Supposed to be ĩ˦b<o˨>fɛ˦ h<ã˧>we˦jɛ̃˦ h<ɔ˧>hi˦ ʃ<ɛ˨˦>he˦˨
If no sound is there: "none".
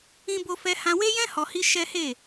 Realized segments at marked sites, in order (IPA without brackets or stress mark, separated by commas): o˦, ã˧, ɔ˧, ɛ˦